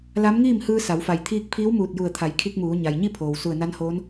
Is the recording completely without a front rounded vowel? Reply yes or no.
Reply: yes